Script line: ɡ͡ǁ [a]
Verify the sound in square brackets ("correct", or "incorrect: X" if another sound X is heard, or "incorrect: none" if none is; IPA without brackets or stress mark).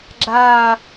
correct